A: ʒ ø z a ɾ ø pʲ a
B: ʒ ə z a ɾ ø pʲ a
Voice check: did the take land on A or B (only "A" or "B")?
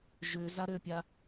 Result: A